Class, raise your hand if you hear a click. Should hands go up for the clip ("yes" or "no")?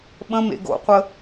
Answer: no